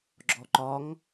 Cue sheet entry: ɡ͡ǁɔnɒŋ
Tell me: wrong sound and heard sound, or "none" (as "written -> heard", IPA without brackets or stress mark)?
n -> ǃ